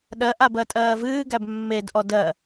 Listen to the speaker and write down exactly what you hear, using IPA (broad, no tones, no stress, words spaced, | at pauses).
ɗɜʔabɜ tʼɜːvɨːɡæb mːedʔɔ dɜ